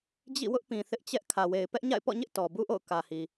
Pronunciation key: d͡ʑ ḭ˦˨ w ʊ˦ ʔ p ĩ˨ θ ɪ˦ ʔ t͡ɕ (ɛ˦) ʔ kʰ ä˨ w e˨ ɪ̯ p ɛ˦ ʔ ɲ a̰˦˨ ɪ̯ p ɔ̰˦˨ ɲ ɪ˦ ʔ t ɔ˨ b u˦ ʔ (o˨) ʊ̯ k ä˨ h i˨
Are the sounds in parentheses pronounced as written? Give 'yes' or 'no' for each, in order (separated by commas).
yes, no